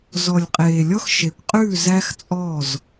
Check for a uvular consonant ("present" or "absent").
present